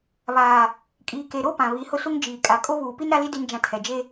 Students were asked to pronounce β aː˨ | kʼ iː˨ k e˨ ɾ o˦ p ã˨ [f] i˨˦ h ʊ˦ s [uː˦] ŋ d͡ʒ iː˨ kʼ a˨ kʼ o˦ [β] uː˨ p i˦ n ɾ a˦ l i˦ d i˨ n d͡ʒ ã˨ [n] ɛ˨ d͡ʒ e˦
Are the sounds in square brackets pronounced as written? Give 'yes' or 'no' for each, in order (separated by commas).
no, no, yes, no